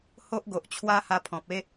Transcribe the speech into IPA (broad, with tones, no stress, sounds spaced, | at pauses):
h o˦ ʔ ɡ o˨ ʔ t͡ɕʰ w a˦ h a˧ pʰ ɔ̃˨ p̚ e˦